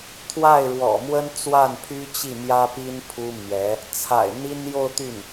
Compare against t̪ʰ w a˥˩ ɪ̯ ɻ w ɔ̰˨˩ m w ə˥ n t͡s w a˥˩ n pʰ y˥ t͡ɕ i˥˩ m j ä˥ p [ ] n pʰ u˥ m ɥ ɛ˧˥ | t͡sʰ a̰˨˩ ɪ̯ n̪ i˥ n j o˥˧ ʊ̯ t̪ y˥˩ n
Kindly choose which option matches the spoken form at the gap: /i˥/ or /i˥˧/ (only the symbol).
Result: i˥